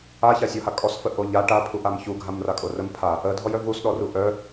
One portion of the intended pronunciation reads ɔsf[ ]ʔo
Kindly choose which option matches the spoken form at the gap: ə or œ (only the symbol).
ə